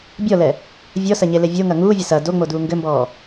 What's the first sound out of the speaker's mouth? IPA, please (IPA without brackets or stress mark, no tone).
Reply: bʲ